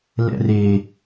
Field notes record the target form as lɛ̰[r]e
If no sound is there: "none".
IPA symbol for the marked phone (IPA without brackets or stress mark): r